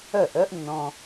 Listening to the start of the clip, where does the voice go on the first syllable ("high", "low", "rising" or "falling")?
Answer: falling